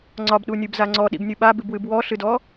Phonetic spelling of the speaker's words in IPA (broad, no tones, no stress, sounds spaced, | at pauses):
ŋ͡ǀ ɒ b ɗ u nʲ ɨ b z a ŋ͡ǀ ɔ ɗ ḭ b nʲ ɨ ɓ a b ɨ b w ɨ b w ɔ ɬ ɨ d ɔ